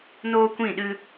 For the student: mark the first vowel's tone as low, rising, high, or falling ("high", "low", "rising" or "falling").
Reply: high